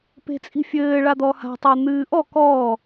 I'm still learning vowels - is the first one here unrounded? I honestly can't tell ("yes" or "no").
yes